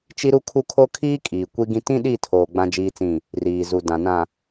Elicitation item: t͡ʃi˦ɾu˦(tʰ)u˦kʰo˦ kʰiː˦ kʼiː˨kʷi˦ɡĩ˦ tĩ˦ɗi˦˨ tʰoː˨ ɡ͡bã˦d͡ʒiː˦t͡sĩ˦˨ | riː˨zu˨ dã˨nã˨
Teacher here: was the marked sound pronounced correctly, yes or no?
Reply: no